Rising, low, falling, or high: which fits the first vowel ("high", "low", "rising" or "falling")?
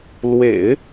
low